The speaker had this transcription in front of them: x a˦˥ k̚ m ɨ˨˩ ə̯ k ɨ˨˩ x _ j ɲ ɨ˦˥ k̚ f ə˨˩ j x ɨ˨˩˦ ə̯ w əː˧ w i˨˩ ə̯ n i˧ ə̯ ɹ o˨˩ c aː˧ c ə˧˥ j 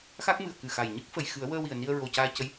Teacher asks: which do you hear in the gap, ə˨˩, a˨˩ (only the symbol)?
a˨˩